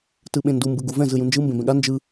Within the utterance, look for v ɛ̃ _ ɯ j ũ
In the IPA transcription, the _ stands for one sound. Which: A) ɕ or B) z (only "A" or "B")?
B